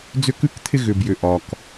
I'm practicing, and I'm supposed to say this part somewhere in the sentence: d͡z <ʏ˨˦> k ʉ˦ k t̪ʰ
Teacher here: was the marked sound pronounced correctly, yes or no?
no